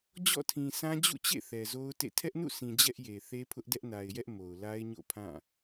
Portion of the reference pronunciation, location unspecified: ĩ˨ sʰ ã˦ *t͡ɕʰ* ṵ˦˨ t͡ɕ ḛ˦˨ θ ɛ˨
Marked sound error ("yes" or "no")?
yes